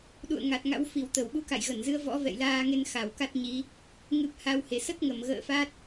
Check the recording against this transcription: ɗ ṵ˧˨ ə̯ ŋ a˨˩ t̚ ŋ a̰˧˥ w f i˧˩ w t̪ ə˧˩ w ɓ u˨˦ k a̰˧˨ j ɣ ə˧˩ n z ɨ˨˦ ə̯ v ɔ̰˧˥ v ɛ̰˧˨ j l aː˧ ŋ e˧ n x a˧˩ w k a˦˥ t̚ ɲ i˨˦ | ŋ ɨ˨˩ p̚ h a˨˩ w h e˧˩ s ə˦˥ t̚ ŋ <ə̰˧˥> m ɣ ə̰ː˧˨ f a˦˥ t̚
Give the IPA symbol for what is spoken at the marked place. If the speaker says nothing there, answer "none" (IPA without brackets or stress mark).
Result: ə˧˩